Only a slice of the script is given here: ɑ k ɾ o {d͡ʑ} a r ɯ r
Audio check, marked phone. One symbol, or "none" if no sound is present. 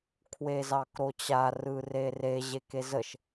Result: t͡ɕ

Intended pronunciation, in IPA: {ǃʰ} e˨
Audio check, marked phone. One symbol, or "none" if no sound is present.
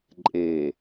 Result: ǃʼ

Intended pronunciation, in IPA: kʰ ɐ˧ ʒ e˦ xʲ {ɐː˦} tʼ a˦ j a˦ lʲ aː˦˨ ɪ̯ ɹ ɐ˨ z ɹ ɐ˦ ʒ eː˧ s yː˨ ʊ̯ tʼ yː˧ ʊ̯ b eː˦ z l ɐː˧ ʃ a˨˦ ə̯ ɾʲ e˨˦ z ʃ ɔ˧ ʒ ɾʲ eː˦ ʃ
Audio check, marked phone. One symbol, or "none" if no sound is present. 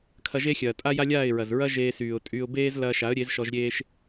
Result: ɐː˨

